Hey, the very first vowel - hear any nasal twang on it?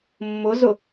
no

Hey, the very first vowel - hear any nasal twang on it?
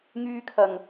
no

